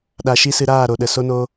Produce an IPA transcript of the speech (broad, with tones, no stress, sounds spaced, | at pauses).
ɗ a˧ ʃ i˦ s ɨ˧ ɾ aː˦˨ ɾ o˨ ɗ ə˨ s o˧ n o˧